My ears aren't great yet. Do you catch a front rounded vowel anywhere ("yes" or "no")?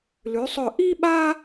no